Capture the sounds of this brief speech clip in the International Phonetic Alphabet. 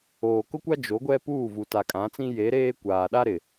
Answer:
oː˨kʊ˦kʷa˦ d͡ʒo˨˦ɡʷɛ˦puː˦˨ vu˨ta˨kʼã˨˦t͡sĩ˦ je˨˦ɾeː˦ kʷaː˨ɗa˦ ɾɪ˨

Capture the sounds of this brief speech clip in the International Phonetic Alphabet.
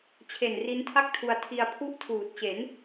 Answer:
t͡ɕʰe˨˩nri˦˥ntʰa˥˩k̚tʰu˧a̯ tʰi˧a̯pʰu˥˩ʔtʰuː˨˩t̚ t͡ɕe˩˦n

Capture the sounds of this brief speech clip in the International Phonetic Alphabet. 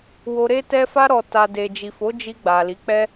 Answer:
wo˧ɾe˦ tɛ˧fa˧ ɾɔ˨ta˨ de˨d͡ʒi˨fo˨˦ d͡ʒi˧ɡ͡ba˨li˨˦ k͡pɛ˦

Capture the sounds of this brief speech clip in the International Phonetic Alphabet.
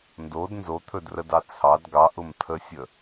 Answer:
ndod nzot̪ʰɵdrədɑ t͡sʰɑd ɡɑʔʊm tʰəsʲə

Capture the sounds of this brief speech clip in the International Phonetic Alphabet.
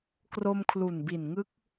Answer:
kro˧mkʰlu˨˩nbi˨˩n ŋɯ˦˥k̚

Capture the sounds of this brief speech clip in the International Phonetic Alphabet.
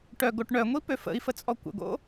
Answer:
ʈœɡoʈ ɳœŋʷipø fə̰i̯fət͡sʼɔ kʷə̰ɡo̰

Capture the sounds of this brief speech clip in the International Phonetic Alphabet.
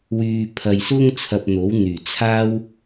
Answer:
wyː˧pʰɐ˧j sʊ˥ŋ t͡sʰɐ˧p̚n̪o˨˥wn̪yː˨˩ t͡sʰaː˥w

